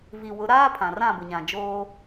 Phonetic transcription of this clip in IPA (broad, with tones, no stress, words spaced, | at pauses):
vi˨wʊ˨˦ ɾaː˦ pʰã˨rã˦˨bʊ˨ɲã˨ d͡ʒoː˦